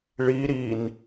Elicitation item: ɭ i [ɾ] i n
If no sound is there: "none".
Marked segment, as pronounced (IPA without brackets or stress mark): ɾ